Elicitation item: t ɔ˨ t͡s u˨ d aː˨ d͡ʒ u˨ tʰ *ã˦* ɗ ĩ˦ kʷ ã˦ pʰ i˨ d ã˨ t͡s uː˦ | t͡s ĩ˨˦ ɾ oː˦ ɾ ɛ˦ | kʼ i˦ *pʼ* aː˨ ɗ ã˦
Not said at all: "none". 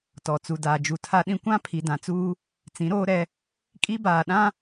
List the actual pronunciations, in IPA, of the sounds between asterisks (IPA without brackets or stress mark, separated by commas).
a˦, b